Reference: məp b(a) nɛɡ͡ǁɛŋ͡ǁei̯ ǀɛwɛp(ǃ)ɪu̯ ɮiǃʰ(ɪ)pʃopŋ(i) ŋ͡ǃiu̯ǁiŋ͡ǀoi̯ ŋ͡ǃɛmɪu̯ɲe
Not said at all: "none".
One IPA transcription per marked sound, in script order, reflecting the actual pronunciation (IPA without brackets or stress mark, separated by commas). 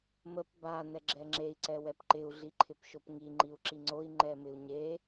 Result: a, ǃ, ɪ, i